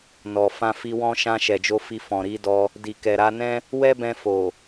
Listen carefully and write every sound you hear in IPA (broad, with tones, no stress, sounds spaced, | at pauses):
n ɔ˨ f ã˧ f i˧ w ɔ̃˦ ʃ ã˧ ʃ ɛ˨ d͡ʒ o˧ f i˧ f ɔ̃˨ ɾ i˨˦ d ɔ˧ | d i˨ k ɛ˨ ɾ a˧ n ɛ̃˦ | w ɛ˦ b ɛ̃˧ f o˨